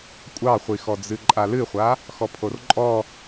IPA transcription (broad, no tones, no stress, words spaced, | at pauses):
kʷʼɑχʷixɔ d͡zɨǃʼalɨχʷa | xɔpʰorǃʼɔ